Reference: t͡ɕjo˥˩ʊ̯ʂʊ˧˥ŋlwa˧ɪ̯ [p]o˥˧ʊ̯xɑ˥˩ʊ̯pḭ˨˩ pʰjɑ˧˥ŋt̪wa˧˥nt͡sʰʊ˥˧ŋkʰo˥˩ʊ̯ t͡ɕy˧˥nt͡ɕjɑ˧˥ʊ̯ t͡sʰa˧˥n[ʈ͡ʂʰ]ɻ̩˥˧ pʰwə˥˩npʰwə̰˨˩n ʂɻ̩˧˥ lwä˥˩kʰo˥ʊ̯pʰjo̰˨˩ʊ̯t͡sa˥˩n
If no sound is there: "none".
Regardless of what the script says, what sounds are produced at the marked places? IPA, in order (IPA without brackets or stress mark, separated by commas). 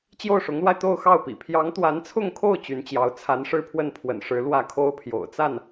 t̪, ʂ